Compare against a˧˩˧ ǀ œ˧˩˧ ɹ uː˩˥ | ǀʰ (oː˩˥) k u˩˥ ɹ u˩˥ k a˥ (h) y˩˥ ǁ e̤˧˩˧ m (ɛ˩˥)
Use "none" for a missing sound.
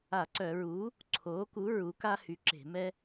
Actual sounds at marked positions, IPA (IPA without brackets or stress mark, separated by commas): oː˩˥, h, ɛ˥